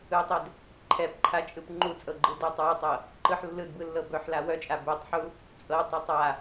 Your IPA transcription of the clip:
ɯ tˤ ɛ d | ǃʰ ɛ p ǃʰ a t͡ʃʼ ɯ p ŋ͡ǃ u t͡sʼ ɤ ɡ͡ǃ ɯ d œ tˤ w ɛ tˤ ɤ | ǃ ɯ ħ lː ɯ d b ɯ lː ɤ b œ ħ l a w œ t͡ʃʼ a b e tˤ ħ u | t͡sʼ ɤ tˤ œ tˤ a

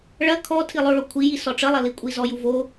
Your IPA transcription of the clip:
ɭ ɐ kʰ ɔ tʰ i lˠ o ɭ o kʷʰ i j i s ɔ ʈ͡ʂ ə lˠ ɐ l i kʷʼ i z ɔ j u v o

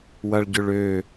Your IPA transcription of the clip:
w ɐ ɭ ɟ ʏ ɭ ø

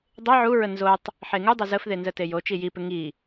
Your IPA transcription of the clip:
dˤ e ʕ u ɹ ə n z o tˤ | ħ e ŋ u dˤ ə z ə f ð e n z ə t e j o t͡ʃ i j i p ɪ ŋ i

